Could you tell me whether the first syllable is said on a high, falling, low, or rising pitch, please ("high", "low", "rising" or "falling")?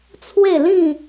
falling